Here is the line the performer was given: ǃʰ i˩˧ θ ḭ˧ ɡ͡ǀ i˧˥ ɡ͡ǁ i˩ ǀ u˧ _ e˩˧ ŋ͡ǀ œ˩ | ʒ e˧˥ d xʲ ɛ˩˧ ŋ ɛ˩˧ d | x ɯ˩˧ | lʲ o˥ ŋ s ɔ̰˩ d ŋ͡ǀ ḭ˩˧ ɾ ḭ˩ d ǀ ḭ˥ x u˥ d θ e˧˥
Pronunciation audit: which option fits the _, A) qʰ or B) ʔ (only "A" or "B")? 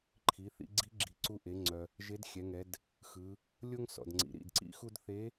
B